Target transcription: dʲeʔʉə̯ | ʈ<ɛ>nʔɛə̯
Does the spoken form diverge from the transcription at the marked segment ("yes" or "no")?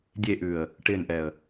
yes